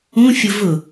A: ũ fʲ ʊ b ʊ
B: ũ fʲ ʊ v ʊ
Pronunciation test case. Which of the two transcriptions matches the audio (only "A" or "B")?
B